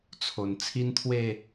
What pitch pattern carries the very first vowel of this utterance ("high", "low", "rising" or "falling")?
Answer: low